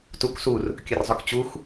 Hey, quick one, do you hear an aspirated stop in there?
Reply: no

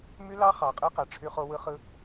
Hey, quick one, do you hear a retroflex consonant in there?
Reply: yes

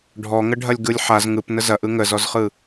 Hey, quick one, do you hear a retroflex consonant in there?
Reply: yes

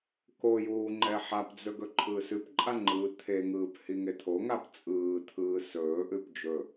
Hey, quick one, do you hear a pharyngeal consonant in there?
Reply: yes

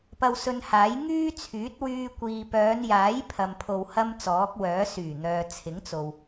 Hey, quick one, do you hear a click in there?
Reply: no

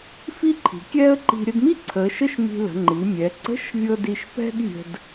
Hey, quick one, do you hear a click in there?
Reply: yes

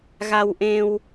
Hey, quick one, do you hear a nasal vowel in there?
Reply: yes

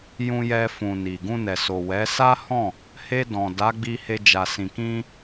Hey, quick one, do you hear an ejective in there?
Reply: no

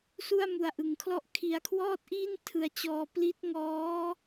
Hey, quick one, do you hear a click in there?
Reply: no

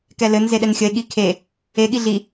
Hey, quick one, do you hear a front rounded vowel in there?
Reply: no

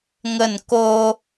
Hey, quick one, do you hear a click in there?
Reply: no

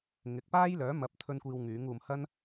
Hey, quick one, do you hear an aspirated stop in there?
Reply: yes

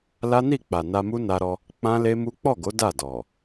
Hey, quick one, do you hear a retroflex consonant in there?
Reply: no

